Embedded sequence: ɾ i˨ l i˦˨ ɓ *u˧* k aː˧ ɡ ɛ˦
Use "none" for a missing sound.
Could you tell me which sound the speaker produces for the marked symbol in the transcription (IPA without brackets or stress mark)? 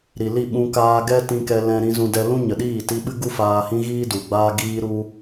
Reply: ũ˧